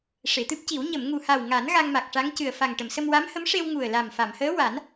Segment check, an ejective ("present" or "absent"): absent